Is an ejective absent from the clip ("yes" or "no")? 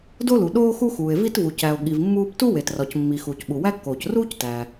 yes